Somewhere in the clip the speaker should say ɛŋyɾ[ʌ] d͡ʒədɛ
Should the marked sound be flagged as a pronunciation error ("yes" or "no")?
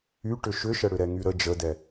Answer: yes